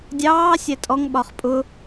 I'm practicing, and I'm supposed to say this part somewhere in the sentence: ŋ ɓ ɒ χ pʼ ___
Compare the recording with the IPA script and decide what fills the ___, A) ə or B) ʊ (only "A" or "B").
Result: B